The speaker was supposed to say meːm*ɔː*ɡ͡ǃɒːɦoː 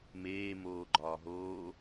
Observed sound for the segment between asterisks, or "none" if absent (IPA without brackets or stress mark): oː